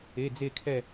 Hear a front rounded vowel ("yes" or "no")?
no